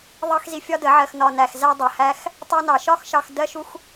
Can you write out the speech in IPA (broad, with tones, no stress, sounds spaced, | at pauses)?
ðˤ ɑ˦ x z i˧ fʲ ɒ˦ d ə˨˦ ʕ ɜ˧ x n ɒ˧ n æ˧ x z æ˦ dˤ ɜ˨ h æ˦ x | tˤ ɜ˧ n ɑ˨ ʃ ɒ˦ x ʃ ɑ˧ x d ɜ˦ ʃ u˦ x